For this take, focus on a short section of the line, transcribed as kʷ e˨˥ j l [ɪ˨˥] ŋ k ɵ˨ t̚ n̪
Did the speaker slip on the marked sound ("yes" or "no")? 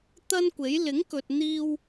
no